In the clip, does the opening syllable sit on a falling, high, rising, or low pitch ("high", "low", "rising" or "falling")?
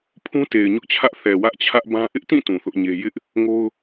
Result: high